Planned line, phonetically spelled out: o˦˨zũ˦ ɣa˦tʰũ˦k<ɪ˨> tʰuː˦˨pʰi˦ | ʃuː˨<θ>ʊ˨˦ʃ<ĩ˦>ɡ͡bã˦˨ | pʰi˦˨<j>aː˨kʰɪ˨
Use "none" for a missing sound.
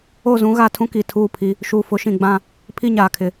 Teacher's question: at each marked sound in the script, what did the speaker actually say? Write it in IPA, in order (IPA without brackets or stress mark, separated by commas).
i˨, f, ĩ˨, ɲ